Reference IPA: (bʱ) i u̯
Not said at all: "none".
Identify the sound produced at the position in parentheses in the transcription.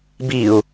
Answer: b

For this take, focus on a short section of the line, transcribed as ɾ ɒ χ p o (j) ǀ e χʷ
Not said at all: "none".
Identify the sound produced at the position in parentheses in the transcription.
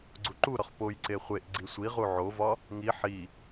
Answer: j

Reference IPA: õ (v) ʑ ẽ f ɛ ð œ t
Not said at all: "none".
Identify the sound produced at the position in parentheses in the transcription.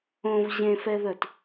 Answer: v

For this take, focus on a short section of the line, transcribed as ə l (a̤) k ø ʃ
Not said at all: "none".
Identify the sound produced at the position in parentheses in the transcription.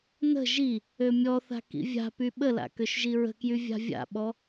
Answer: a̰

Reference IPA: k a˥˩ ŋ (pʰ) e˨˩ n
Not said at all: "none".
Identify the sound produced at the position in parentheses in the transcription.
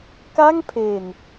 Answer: pʰ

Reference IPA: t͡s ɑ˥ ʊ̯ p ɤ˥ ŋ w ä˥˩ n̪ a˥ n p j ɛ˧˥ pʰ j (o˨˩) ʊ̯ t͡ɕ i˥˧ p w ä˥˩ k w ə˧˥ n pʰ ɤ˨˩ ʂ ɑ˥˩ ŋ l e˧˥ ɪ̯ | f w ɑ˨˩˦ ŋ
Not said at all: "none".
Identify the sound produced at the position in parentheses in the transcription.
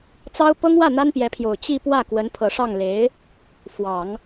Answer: o˨˩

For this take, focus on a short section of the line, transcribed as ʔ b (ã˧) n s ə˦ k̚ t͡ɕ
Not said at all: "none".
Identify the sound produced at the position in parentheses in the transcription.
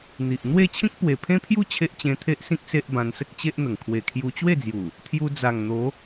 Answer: ã˧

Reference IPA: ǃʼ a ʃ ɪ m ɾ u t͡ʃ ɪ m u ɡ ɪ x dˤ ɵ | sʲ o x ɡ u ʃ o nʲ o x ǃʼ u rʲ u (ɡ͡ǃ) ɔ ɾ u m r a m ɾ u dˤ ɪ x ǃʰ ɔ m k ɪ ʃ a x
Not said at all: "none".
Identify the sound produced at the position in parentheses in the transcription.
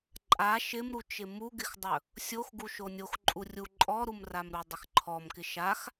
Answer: ǃʼ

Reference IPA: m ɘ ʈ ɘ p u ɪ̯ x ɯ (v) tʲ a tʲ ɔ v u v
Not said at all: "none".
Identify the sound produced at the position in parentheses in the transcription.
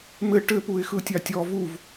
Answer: none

